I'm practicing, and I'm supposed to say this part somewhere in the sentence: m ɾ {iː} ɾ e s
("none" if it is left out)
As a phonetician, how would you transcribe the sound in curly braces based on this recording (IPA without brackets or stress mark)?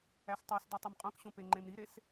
i